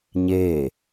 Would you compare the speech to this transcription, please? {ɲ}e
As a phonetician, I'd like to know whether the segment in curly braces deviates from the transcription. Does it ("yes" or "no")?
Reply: no